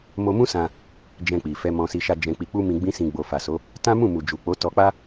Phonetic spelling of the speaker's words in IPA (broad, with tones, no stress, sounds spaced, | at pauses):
m o˧ m ũ˦ s ã˧ | d͡ʒ ɛ̃˧ k͡p i˨ f ɛ˧ m ɔ̃˧ s i˧ ʃ a˧ d͡ʒ ɛ̃˨ k͡p i˨ k͡p u˧ m ĩ˨ ɡ͡b ĩ˧ s ĩ˨ ɡ͡b o˨ f a˨ s o˨˦ | t ã˦ m ũ˦˨ m u˨ d͡ʒ u˨ k͡p o˨˦ t ɔ˧ k͡p a˦